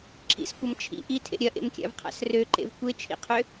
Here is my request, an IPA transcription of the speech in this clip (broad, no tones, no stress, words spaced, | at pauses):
ǁʰḭskʷɐm t͡ʃʰḭ ʔitʰḛ ɾʲɐʔḛmkʲa̰vqʰa̰s røǃḛv kʷet͡ʃʰḭqʰø